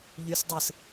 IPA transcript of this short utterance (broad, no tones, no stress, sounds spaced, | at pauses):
ʎ y s dˤ ɯ s